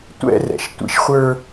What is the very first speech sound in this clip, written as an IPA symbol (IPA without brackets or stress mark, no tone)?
tʷ